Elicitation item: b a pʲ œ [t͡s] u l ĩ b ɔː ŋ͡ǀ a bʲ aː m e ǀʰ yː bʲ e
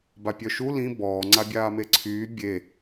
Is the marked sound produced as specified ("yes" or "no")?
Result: no